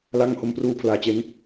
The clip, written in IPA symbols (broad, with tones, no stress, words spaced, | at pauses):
la˧ŋ ho˧mpruː˧pʰlaː˨˩t͡ɕe˦˥n